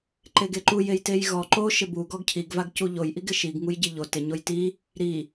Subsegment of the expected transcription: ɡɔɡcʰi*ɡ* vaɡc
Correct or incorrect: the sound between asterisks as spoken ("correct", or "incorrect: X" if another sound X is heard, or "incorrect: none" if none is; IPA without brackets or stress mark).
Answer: correct